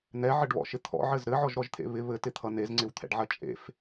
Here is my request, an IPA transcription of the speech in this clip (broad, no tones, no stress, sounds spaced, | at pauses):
n̪ ɛ ʕ ɘ ɖ β ɔ̰ ʃ ɪ t̪ʰ ɔ̰ ʕ ɘ z ɾ ɘ ʕ ɔ ʒ ɾ ɔ ʒ t̪ʰ ḛ β ɪ β ɘ t ɪ t̪ʰ ʌ n e z ŋ͡ǀ ɪ w t̪ʰ ɛ̰ ɖ ʕ ɐ t͡ʃʼ ḛ f